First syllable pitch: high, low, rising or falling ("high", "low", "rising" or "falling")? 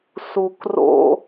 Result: low